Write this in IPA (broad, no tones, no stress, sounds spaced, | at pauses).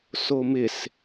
s o m ɪ s